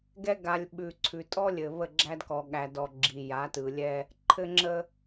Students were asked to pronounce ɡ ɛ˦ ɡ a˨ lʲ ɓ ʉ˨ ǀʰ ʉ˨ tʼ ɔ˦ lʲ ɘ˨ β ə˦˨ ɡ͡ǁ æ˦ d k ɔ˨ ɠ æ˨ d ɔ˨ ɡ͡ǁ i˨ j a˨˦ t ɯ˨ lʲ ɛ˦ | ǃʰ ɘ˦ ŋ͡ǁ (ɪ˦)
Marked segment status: incorrect: ə˦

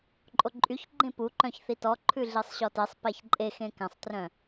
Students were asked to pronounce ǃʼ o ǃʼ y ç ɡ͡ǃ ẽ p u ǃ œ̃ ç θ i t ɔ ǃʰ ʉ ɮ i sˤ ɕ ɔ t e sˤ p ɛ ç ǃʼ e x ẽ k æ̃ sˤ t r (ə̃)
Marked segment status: incorrect: œ̃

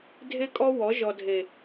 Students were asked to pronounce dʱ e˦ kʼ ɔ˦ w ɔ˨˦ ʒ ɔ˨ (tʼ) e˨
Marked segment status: incorrect: dʱ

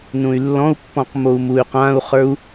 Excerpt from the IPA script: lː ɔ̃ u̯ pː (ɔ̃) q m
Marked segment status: correct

